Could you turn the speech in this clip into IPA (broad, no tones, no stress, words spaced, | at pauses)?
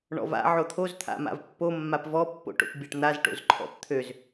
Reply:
ɳɔ̰va̰ ʕot̪ʰoz t̪ʰa̰ma̰vpːo mːapvɔpːo̰ʈo̰p bʲaʈn̪az ʈo̰zǃʰɔ̰pt̪ʰøz